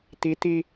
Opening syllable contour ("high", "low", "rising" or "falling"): rising